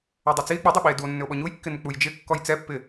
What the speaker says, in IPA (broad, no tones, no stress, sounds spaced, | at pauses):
ɛ dˤ ʏ t͡s i e̯ k͡p i dˤ ɪ ɓ i e̯ d u o̯ nː ʏ o̯ ɓ ɔ ɲ u j kː ɪ n ʏ k͡p u j d͡ʒ ɪ kː ɔ j t͡s ɛ pː ɪ